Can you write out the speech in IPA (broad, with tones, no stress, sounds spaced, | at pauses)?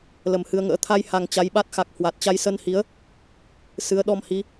l ə˨˩ m h ɨ˧ ə̯ ŋ ə̰ː˧˥ t̪ʰ a˧ j h a˨˩ ŋ t͡ɕ a˨˦ j ɓ a˦˥ t̚ x a˨˩ k̚ h w a˨˩ t̚ t͡ɕ a˧ j s ə˧ n h i˨˦ ə̯ | s ɨ˨˦ ə̯ ɗ ɔ˧ m h i˨˦